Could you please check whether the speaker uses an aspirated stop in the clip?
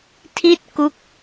yes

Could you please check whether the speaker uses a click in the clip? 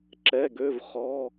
yes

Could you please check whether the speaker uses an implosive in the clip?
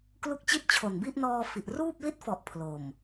no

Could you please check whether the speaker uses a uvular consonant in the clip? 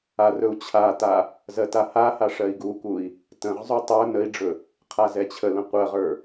yes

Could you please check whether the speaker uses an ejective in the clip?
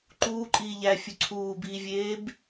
yes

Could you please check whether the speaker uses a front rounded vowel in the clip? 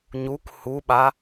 no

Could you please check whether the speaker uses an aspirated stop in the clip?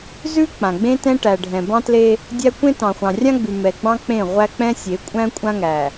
no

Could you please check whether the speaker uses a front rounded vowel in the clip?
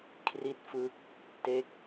no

